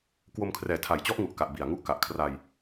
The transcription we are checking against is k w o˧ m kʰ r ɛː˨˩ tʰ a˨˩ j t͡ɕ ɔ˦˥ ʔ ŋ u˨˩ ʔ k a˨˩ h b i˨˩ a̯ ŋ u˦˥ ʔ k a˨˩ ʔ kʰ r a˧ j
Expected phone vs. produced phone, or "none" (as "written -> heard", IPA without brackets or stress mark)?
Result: h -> ʔ